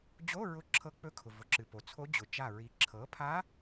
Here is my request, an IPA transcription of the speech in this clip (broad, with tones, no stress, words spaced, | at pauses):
d͡ʑo˧˥˧ɹʊ˧˩ ǁʰɤ˧˥k͡pɵ˧˥kʰʊ˩ vʊ˩ǁɨ˩ po˩t͡sʰo˧˥ d͡ʑʊ˩t͡ʃa˧˩ ɹi˩˥ ǁʰɤ˩˥pʰa˧˥